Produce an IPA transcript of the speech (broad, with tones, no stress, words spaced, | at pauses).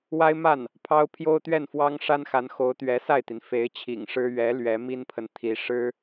wa˥ɪ̯ma˥˩n | pʰɑ˥ʊ̯ pʰjo˥ʊ̯t̪ɥɛ˥˩nfwɑ˥ŋ ʂa˥nxa˧˥nxo˧˥ʊ̯ t̪ɥɛ˧˥sa˥˩ɪ̯t̪i˩n fe˧˥ɪ̯t͡ɕʰḭ˨˩ŋʂɻ̩˥ ɥɛ˧˥ lɥɛ˧˥mi˥npʰə˨nt̪ʰi˧˥ ʂɻ̩˥